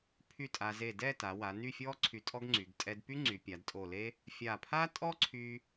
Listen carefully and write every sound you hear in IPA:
pʰ y˥˧ tʼ a˧ z e˧˩ d ɛ˥˧ t a˩˧ w a˩˧ n y˥˧ fʲ ɔ˥ ǀʰ y˧ tʼ ɔ˥ ɡ ŋ͡ǀ y˩˧ ɡ tʼ ɛ˧ d p y˥ ŋ͡ǀ y˩˧ pʲ a˩˧ d tʼ o˧˩ l e˥ | fʲ a˧˩ pʰ a˥ tʼ ɔ˥ ǀʰ y˧

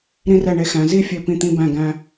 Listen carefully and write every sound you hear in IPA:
ɾ ĩ˧ r ɛ˧˩ ɳ e˧ x æ̃˩˧ z i˥˧ fʲ ø˧˩ p ĩ˧˩ t̪ ĩ˧ b æ̃˧˩ ɡ æ̃˧

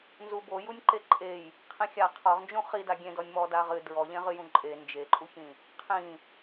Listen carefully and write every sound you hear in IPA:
n z u b o j u nʲ ǃ e ǃʼ e j | qʰ ĩ xʲ a qʰ ɔ ʁ n d͡ʒ ũ χ i d a ɡʲ ẽ d ɔ nʲ m ɔ d a ʁ ɨ d ɹ ɔ ʎ ẽ ʁ ɨ j ũ ǃʼ e n d͡ʒ e ǃʼ u ç ĩ | qʰ ĩ

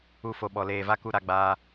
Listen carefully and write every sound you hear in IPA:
u˦ f o˧ ɓ ɔ˧ l eː˧ v a˦ k u˦ ɾ a˦ ɡ͡b aː˦

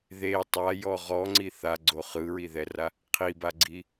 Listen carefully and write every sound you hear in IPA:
ð e tˤ a j ɔ ʁ ɔ ŋ͡ǀ i θ a ɡ͡ǀ o χ ɯ ɹ i ð ɛ r a | qʰ i b a ɡ͡ǀ i

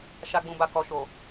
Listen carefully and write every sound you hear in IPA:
ʃ a˨ ɡ͡b ũ˨ b a˨ k ɔ˨ ʃ o˨

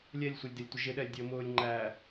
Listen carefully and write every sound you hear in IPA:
lʲ ɛ lʲ sʷ ʌ lʲ d ɪ lʲ tʷ ə ʒ ɪ ɗ ɛː lʲ dʲ əː m ʊː lʲ ŋ͡ǃ æ

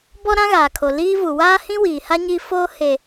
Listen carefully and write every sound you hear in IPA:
b ɔ˦ ɾ ã˦ ɣ aː˨ kʰ o˨ l iː˦ v u˨ w aː˦ h ĩ˦ w iː˨ h a˦ ɲ iː˦ f oː˦ h e˨

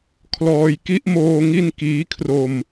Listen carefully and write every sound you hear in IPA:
kʰ l ɔː˧ j k i˦˥ ʔ m oː˧ ŋ i˥˩ n k iː˦˥ kʰ r o˧ m

